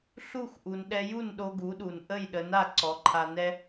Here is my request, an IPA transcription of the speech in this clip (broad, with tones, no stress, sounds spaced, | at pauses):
ɬ u˥˩ x ʔ u˩ n ɗ ɛ˧ j u˥˩ n ɗ o˧ ɡ u˩˥ ɗ u˩ n ʔ ə˥˩ j ɗ ə˩˥ n a˥˩ ǀ ɔ˩˥ ǃʰ a˧ n ɛ˥